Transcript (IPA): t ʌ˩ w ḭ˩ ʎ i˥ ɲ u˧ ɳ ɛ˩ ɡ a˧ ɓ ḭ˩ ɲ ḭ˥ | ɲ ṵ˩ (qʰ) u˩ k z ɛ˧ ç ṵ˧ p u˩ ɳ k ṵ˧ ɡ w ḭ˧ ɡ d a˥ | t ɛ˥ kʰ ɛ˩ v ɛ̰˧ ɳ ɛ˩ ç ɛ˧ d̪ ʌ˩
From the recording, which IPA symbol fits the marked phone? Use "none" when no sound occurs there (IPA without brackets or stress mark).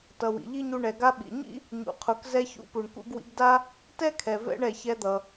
qʰ